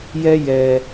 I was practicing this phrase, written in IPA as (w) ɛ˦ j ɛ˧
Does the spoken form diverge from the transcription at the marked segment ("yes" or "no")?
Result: yes